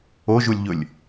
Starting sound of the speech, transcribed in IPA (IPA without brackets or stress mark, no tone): o